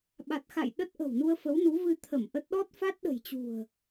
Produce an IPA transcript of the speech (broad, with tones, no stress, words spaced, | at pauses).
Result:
ɓa˨˩t̚ xa̰˧˨j ɗə˦˥t̚ʔə̤˨˩wnu˧ə̯ fə˨˦wnu˨˦vɨ˧ t̪ʰə˧˩m ʔə˦˥t̚ ɗɔ˦˥t̚fa˦˥t̚ɗə̤˨˩jt͡ɕṳ˨˩ə̯